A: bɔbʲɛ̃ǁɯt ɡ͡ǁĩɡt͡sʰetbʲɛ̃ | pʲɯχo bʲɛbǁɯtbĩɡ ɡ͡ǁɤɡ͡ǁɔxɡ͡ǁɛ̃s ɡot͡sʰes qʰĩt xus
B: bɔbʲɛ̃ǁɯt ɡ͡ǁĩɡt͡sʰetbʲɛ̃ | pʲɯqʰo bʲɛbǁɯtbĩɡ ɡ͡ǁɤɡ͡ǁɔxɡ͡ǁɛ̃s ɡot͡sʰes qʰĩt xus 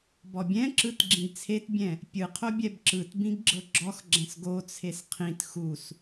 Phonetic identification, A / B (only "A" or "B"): B